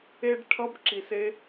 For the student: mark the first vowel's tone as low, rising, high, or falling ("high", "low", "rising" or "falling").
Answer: high